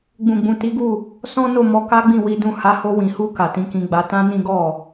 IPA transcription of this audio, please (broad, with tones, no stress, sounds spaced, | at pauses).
ɡ͡b ũ˨ ɡ͡b ũ˨ t i˨˦ ɡ u˦˨ | s ɔ̃˦ n o˦˨ m ɔ˧ k a˦ ɡ͡b ĩ˦˨ w i˨˦ d ũ˦˨ h a˨˦ h o˧ w ĩ˨ h u˧ k a˨ t ĩ˨˦ k ĩ˧ ɡ͡b a˧ t ã˦ n ĩ˦ ɡ ɔ˦˨